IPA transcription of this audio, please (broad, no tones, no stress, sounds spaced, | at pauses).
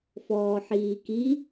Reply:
f ɔː ħ iː k i